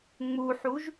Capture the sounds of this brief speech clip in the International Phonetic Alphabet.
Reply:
ŋ͡m u ħ u ʒ

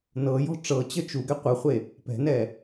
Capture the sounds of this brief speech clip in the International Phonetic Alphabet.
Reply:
n ɤ j ɔ̤ ʈ͡ʂ ɤ t͡ɕ ə t͡ʃ u ɡ ɛ qʷ ə χʷ e | p ɛ̤ n ɛ

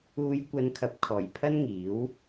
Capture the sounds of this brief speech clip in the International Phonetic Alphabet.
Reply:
uː˨˧ j kʷ ɐ˨˧ n kʰ ɐ˨ p̚ kʰ ɔː˨˩ j pʰ ɐ˥ n ŋ iː˨˥ w

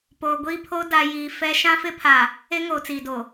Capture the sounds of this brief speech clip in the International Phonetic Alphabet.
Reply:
p oː˨ ɡʷ iː˦ pʰ o˦ d a˨ j iː˨ f ɛ˦ ʃ ã˦ f ɪ˦ pʰ a˨ | e˦ ŋ oː˨ t͡s iː˨ d o˨

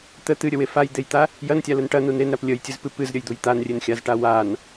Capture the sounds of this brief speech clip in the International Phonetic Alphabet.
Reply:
t̪ ə t̪ ɨ ɾʲ ə w e f a j d̪ e j t̪ a | j ɐ n tʲ a l ə n ʈ ɐ n u n e n ɾ a p lʲ ə j tʲ ɨ z p ɨ p ɨ z ɾʲ ə j d̪ u j t̪ a n rʲ e n xʲ a z ʈ a w a n

